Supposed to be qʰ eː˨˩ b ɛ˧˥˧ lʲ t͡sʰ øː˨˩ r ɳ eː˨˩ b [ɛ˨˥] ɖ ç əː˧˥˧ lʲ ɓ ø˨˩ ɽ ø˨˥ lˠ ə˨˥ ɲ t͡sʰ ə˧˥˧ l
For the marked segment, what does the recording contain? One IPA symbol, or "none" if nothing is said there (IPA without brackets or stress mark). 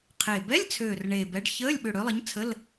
ɛ˨˥